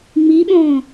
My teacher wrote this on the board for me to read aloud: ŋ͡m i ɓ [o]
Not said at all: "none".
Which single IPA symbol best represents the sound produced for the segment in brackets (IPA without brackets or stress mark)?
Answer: õ